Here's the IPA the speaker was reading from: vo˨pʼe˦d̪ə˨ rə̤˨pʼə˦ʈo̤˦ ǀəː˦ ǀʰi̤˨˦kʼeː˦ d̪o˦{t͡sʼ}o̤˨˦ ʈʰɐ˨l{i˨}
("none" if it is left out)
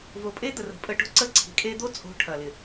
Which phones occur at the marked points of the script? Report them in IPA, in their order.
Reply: t͡sʼ, ɪ˨

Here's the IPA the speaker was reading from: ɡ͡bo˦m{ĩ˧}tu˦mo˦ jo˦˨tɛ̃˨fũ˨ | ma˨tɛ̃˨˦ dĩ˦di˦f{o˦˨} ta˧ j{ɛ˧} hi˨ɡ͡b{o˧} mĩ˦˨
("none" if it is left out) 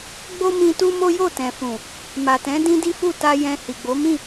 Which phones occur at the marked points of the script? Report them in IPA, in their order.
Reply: ĩ˧, u˦˨, ɛ̃˧, o˨˦

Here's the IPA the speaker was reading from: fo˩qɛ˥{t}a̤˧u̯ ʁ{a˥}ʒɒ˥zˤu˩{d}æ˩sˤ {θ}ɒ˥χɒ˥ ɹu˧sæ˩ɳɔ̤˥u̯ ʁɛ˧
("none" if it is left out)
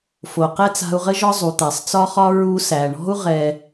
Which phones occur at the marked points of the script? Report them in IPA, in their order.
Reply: t͡s, ə˥, t̪, t͡s

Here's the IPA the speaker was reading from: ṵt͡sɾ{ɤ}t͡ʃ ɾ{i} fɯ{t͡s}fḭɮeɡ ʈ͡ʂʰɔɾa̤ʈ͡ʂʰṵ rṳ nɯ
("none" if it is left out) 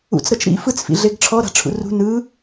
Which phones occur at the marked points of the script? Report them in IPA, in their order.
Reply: ɤ, ḭ, t͡s

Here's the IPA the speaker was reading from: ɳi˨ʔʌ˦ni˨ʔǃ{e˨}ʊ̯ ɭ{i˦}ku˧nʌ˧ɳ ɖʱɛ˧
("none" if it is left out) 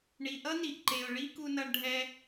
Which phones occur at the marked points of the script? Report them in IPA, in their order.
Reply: e˨, i˦

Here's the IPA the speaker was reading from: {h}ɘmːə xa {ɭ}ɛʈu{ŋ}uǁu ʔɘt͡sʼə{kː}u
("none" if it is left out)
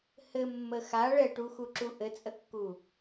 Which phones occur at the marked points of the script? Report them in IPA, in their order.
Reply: h, ɭ, x, kː

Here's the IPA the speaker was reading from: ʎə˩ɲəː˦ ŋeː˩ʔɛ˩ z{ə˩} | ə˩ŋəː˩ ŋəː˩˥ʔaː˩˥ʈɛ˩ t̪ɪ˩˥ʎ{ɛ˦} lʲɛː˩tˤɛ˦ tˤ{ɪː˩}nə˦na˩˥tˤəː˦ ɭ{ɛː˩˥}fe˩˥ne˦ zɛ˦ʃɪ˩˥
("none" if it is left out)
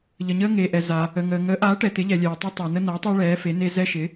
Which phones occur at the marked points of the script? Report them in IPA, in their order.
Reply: a˩, ɛ˩, ɪː˩, ɛː˩˥

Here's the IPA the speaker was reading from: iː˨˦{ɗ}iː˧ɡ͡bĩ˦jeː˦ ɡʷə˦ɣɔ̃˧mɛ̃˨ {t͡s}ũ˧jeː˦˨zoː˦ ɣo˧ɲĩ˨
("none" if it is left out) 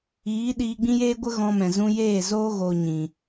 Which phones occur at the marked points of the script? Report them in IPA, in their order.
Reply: ɗ, z

